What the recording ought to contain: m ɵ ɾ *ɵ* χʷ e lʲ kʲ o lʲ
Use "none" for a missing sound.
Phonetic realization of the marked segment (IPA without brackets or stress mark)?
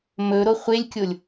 o